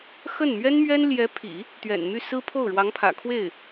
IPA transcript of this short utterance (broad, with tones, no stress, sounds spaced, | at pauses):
x ə˥˩ n m ɥ ɛ˥ n m ɥ ɛ˥ n l j ɛ˧˥ pʰ ḭ˨˩˦ | t̪ ɥ ɛ̰˨˩ n m y˥˩ s ɹ̩˥ pʰ o˥˩ ʊ̯ ɻ w ɑ˧˥ ŋ pʰ ä̰˨˩ kʰ w e˥˩ ɪ̯